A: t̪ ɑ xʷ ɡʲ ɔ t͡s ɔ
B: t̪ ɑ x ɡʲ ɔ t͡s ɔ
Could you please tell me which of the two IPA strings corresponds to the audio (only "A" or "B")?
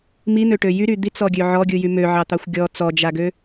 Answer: A